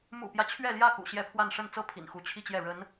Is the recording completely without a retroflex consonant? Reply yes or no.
no